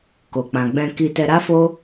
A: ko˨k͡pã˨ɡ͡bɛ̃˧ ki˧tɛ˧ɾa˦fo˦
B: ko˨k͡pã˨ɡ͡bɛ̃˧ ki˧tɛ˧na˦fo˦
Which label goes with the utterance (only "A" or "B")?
A